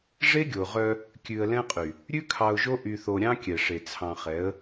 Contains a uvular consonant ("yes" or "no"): yes